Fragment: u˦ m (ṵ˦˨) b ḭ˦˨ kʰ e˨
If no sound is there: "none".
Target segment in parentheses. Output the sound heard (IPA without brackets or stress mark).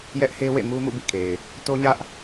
ṵ˦˨